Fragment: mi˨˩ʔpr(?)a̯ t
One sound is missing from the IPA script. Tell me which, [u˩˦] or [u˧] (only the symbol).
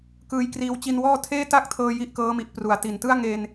u˩˦